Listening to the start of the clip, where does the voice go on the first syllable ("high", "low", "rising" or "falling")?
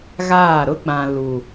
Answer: falling